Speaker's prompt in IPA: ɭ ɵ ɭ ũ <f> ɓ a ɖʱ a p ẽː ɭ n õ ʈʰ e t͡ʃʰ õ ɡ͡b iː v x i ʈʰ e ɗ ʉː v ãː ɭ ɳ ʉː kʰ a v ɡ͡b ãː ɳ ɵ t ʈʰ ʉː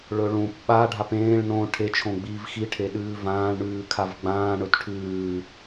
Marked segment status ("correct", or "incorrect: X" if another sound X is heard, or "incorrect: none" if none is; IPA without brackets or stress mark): incorrect: p